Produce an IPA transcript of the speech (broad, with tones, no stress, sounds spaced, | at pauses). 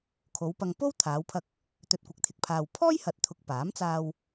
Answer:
kʰ o˨˧ w p ɐ˧ ŋ p o˥ w t̪ʰ aː˨˧ w pʰ ɐ˧ k̚ | t̪ ɵ˨ t̚ kʷ ɐ˨ k̚ t̪ʰ ɪ˨ k̚ pʰ aː˨ w pʰ ɔː˥ j h ɐ˨ t̚ t̪ʰ ʊ˨ k̚ p aː˨˥ m t͡s aː˧ w